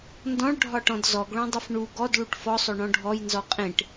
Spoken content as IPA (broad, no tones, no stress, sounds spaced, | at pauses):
n d ɔ̃ ɭ ɖʱ ɒ ʈ ɔ̃ d z ɔ ɡ ɭ õ dˤ ɯ f ɳ u ɡ ɔ d ɭ u ʈ f ɔ sˤ o ɳ ɔ̃ ɖʱ ɔ j n z ɔ qʼ ẽ ʈ